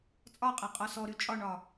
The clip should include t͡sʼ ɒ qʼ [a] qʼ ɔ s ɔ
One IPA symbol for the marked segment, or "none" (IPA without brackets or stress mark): a